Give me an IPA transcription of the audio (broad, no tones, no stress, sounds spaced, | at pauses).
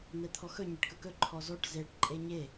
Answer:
n̪ ɛ t̪ʰ ɔ x ɵ ɲ ɛ ʈ k ɵ k ɵ ǃʰ ɔ z ɔ ʈ z e ʈ ǃʼ e ɲ e